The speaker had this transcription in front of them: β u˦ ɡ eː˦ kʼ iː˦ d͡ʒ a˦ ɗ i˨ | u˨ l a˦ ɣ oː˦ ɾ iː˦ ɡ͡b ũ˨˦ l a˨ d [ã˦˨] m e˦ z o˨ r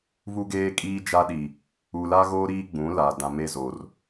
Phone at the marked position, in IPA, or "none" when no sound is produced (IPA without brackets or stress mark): ã˨